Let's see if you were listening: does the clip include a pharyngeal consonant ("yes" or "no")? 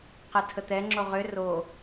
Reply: no